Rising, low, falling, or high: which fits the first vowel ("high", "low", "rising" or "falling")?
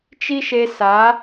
high